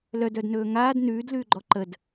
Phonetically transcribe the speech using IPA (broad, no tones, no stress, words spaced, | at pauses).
lœd œdnɵːŋaːd nʉːdlʉːɡ͡ǃɔ ǃəd